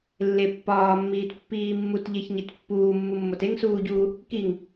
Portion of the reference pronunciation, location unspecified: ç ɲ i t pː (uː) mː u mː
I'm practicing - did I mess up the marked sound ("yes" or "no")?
no